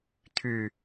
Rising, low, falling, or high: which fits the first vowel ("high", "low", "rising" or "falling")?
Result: low